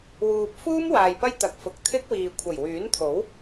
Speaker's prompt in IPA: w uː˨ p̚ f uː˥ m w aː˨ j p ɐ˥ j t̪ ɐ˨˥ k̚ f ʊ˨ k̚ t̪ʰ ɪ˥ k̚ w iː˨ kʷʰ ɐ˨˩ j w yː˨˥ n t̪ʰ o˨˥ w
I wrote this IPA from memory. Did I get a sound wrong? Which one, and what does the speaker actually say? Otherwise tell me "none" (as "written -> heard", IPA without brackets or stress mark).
none